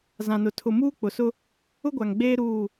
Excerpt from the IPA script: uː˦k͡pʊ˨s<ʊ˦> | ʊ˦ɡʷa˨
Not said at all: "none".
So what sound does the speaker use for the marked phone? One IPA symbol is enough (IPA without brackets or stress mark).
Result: ʊ˦